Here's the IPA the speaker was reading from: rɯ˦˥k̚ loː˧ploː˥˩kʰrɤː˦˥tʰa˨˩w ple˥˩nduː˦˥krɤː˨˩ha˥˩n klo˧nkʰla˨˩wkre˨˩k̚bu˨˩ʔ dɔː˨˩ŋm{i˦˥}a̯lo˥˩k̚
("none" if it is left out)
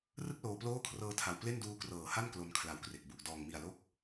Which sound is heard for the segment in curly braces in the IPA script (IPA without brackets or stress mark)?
i˨˩